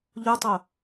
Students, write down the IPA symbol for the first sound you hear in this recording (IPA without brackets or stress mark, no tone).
ʎ